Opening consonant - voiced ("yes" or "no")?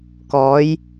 no